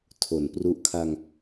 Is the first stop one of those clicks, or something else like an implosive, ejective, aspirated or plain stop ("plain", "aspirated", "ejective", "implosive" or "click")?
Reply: aspirated